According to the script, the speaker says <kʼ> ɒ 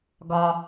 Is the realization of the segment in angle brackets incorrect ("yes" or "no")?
yes